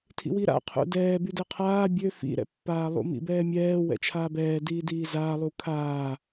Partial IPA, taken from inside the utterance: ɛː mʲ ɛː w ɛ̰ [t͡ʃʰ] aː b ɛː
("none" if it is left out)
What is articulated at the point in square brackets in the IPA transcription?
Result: t͡ʃʰ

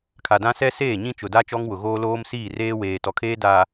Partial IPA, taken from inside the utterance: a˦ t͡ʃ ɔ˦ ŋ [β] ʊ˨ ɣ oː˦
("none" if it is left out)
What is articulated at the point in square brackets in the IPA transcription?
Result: w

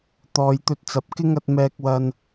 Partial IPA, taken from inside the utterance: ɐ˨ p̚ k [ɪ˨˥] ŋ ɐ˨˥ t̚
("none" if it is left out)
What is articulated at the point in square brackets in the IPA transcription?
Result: ɪ˥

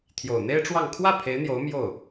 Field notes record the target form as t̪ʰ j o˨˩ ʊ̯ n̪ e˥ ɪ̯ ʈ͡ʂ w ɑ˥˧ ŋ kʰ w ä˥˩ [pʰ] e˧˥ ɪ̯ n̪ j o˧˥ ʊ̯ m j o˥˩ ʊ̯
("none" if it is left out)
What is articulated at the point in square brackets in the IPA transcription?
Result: pʰ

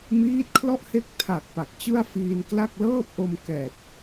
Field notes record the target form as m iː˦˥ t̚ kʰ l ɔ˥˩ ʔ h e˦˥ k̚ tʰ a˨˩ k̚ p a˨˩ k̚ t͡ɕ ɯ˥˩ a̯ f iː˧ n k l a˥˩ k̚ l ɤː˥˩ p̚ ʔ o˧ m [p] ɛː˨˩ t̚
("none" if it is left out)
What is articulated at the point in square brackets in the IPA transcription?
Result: k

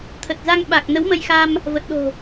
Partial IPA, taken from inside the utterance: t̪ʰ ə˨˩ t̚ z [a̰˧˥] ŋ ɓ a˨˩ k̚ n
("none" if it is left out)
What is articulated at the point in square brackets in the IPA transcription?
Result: a˧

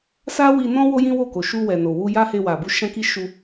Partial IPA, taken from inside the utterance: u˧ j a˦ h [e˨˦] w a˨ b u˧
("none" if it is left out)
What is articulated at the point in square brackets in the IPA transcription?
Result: e˧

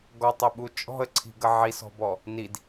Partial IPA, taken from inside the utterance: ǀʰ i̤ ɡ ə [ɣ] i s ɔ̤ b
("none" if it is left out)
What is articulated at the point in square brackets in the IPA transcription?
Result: ʕ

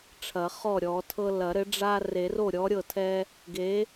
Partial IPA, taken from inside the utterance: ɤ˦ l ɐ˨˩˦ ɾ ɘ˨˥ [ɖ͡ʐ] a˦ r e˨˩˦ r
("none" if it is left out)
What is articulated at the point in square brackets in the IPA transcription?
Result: ɖ͡ʐ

